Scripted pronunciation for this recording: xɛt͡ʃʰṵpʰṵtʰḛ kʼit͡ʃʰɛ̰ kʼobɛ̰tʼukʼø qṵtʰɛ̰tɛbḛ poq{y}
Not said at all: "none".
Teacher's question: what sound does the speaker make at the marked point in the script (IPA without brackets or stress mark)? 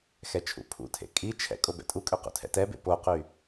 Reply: y